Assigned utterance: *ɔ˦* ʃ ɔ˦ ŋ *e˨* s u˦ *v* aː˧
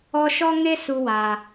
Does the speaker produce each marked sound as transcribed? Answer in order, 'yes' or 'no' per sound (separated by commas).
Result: yes, no, no